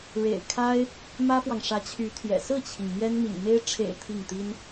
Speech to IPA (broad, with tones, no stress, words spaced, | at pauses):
ɻḛ˨˩ɪ̯ kʰa˥ɪ̯ | mä˥fwɑ˨ŋ ʂä˧˥t͡ɕʰy˧˥t̪ʰjɛ̰˨˩ sɹ̩˥˩t͡ɕʰi˩ŋ mjɛ˥nmḭ˨˩ŋ me˥ɪ̯ ʈ͡ʂʰḛ˨˩ɪ̯ t̪ʰi˥˩ŋt̪i˥n